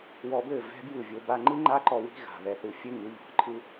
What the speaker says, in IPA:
wɔ˧bɘ˦˨ vɛ̤˦bjɯ˦˨vʲo˧ ba˧ŋ͡ǃɯ˦ŋ͡ǃa˦ǃɔ˧ wi̤˦ ɣa̤˨ βɛ˨θɯ˨fʲɘ˧ ŋɯ˨˦ʎɔ̤˨ǃʰɯ˦

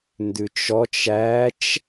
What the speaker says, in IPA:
ndʉt͡ʃɔt͡ʃ æt͡ʃ

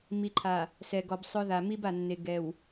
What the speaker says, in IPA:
mi˨ǃʰa˨ | sɛ˨ɡɔ˨bsˤʊ˦ ða˨ mi˦ba˨nːe˨ ɡɛ˨w

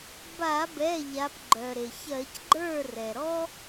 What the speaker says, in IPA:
ba˧˩˧bɛ˩˧˩ ʎa˨˦p ɡ͡ǃœ˩ɾe˩ çɜ˧˩˧cɡ͡ǃə˞˥˩rɛ˩ɾɔ˥

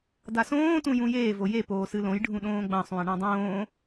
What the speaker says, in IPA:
dasõː tũjũjeː voje poːsɨlõj ɖʱũɗõːɡ͡bɐ̃ sˤũə̯ɳãdˤõː

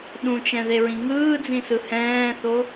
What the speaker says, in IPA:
ɗũt͡ʃɛ̃ðeɹĩ ŋɯːd͡zĩsɯ hɛ̃ːθo

